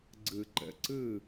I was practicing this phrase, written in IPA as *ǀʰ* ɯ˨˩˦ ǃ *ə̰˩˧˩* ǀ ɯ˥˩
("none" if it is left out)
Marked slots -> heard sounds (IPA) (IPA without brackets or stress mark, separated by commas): ɡ͡ǀ, ə̰˩˧˩